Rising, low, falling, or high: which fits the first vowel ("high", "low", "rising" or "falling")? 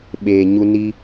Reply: low